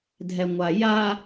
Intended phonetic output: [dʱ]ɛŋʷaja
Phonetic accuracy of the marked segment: correct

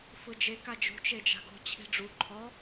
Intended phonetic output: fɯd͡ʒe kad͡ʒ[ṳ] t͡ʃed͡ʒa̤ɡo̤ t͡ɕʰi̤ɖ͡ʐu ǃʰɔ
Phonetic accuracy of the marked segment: correct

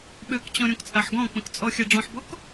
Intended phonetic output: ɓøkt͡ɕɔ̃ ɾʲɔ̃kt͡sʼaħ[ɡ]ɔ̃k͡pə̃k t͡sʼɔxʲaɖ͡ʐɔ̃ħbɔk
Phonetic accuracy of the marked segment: correct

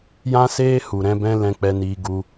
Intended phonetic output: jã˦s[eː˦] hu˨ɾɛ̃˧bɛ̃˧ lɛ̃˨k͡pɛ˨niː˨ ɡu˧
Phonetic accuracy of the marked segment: correct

